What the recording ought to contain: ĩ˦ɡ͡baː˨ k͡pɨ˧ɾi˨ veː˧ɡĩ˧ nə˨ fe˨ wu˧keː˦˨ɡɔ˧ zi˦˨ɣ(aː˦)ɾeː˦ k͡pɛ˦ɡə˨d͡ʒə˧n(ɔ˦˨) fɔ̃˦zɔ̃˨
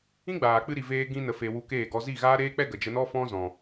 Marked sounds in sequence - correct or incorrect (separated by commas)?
correct, incorrect